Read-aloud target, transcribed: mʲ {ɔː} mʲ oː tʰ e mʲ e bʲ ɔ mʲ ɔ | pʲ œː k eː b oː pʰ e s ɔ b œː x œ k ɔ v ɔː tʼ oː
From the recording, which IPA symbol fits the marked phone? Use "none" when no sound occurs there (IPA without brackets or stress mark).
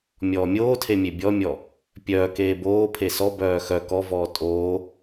ɔː